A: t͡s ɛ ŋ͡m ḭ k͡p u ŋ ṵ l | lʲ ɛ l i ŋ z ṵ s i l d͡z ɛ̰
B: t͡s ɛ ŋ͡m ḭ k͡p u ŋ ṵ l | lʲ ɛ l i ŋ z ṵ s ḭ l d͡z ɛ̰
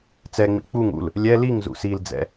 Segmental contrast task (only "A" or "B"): A